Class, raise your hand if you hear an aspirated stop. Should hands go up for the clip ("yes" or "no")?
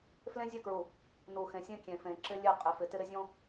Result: no